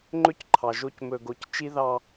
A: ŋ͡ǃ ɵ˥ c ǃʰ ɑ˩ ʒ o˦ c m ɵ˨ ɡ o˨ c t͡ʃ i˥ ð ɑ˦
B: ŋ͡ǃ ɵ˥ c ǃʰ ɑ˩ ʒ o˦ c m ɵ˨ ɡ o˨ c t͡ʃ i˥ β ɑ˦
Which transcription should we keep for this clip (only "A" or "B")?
A